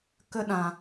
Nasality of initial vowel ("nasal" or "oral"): oral